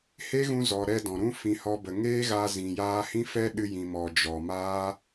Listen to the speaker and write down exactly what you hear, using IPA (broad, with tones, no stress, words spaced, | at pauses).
he˦ɣũ˧ zɔ˨ ɾɛ˧dɔ̃˨ ɾũ˦fĩ˧ hɔ˧bə˨ ŋeː˦ ɣa˧zĩ˨jaː˧hĩ˦ fɛ˦ɗɨ˧ jĩ˨mɔ˨ d͡ʒɔ˨maː˦